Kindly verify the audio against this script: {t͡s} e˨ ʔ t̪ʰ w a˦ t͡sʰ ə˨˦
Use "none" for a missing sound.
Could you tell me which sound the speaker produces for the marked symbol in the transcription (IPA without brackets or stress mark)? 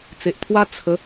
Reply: t͡s